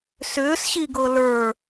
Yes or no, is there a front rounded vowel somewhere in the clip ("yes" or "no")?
yes